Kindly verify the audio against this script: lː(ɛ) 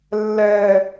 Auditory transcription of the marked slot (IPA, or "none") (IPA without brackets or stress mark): ɛ